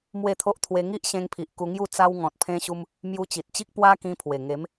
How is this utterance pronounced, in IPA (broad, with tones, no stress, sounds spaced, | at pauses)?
m w e˥˧ t̪ʰ o˦ ʔ t̪ʰ w e˧ ŋ i˦ ʔ ɕ ẽ˧ ŋ pʰ i˨ ʔ k u˧ ŋ j u˥˧ t͡s a˧ w ŋ ɔ̃˨ t̚ pʰ ẽ˧ ɕ u˧ m | m j u˧ t͡ɕ i˨ t̚ t͡ɕ i˦ k̚ p w a˦ k ĩ˧ pʰ w e˨˩ ŋ e˨˦ m